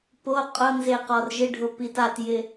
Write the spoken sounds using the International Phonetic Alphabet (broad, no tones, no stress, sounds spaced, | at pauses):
p o qʼ ʊ n z e q ɔ r ʒ ɪ ɖʱ ʊ p i t a t j ɪ